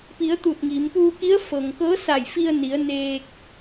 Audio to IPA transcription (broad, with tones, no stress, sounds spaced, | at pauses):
p i˩˧ ə̯ t̪ u˧˩ t̚ ŋ i˩˧ m p uː˧ k i˧˥ ə̯ f ɤː˩ ŋ k ɤː˧˥ s a˧˩ j f i˧ ə̯ n i˩˧ ə̯ n eː˧ k̚